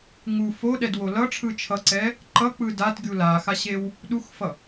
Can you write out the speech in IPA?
ŋu foɗɛdwo lʌʈ͡ʂʰɯ t͡ʃʰʌǀɛ | ǃʌk͡pɯ datɡʲu laxaɕew | ɗuxfʌ

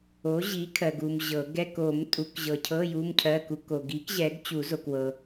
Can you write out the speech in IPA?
o˨˥ʑi˨˥kʰɜ˨ɡ u˨m ʑɤ˨˩˦ ɡɛ˧˥˧ko˨˩˦m tʼu˨˩˦kʑɤ˨cʰɤ˧˥˧ ju˧˥˧mcʰɜ˧˥˧ku˨˥ ko˨ɡi˨˥k ʑɛ˨˥ɡt͡ɕu˨˩˦zo˨k wɤ˨

